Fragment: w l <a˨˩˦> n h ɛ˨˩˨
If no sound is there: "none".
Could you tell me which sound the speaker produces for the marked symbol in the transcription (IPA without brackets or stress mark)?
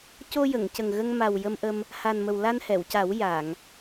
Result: a˧